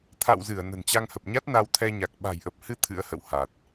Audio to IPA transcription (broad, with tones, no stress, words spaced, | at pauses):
t̪ʰa̰˧˨wzɨ˧˩ə̯ nə̤˨˩nt͡ɕa˧ŋhə˨˩p̚ɲa˦˥t̚ na˧wt̪ʰɛ˧ɲa˨˩k̚ ɓa̤˨˩jʔə˨˩p̚hɨ˧ t̪ʰɨ̰˧˥ə̯hə̰˧˨wha˨˩t̚